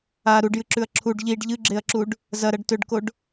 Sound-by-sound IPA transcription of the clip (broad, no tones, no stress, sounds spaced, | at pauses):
a ɾ u ɖ j ɨ ǁ ʉ ɐ̯ ǁʰ u ɖ ʎ i ɖ ʎ ɨ ɡ͡ǁ e ɐ̯ ǁ u ɖ | z ɐ ɾ ɐ ɖ t ɵ ɖ k o ɖ